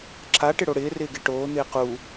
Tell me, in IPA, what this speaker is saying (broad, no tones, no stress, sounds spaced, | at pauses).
ǁ a ʈ ɪ ɽ o ɽ ɪː r ɪː ɡ e ʈ oː n̪ ɪː q u